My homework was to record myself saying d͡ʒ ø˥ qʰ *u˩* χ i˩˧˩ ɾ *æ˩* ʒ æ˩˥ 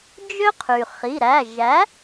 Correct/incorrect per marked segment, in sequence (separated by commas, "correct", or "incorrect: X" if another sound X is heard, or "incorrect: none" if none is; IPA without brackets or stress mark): incorrect: y˩, incorrect: æ˩˧˩